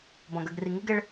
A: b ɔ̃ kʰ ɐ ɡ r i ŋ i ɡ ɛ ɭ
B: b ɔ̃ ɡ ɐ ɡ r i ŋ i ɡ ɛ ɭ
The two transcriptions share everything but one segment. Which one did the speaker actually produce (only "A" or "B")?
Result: B